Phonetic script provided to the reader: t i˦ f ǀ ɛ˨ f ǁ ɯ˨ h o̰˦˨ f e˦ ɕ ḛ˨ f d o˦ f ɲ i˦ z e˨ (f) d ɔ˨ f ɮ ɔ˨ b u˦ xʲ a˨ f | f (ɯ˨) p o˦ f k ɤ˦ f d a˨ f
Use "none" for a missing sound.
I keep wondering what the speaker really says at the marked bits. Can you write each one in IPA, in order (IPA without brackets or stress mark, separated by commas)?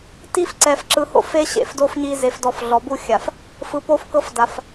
f, ɯ˨